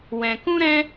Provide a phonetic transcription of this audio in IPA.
w ɛ̃˨ k ũ˦ ɾ ɛ̃˦

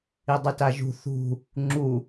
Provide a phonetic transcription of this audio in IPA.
i dˤ i t a ʒ ṳ θ ṳ | ŋ͡ǁ u

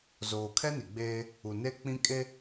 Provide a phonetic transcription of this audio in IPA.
z oː˨ kʰ ɛ˦ n i˨ ɡ͡b eː˦ | u˨ n e˦ k͡p ĩ˦ kʼ e˦

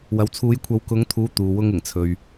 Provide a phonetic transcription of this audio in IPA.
w ɐ˨ w t͡sʰ uː˨˧ j kʷʰ ɐ˨˧ w k ʊ˨˧ ŋ t̪ʰ uː˨˧ t̪ uː˨ w ʊ˧ ŋ ɪ˨˩ ŋ t͡sʰ ɵ˨ ɥ

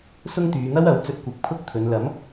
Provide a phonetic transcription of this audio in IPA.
s ʊ˥ ŋ t̪ yː˨˧ n̪ ɐ˥ w ɐ˨˥ w t͡s ɵ˧ t̚ kʷ ɪ˨˥ k̚ pʰ ʊ˥ k̚ t̪ʰ ɵ˨˧ n l ɐ˨˥ m

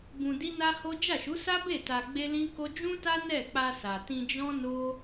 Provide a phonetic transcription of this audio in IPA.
b ũ˧ d i˦ n a˦ h o˦ d͡ʒ a˦˨ ʃ u˨˦ s a˦ b e˦˨ t a˧ ɡ͡b e˦ l ĩ˦ k o˦ d͡ʒ ũ˦ t a˦ n ɛ˦˨ k͡p a˧ s a˨ t ĩ˧ d͡ʒ ɔ̃˦ n o˦

